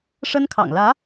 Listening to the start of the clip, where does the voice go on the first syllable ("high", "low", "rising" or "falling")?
high